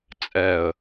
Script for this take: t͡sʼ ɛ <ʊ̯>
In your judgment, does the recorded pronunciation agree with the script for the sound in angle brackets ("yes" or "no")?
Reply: no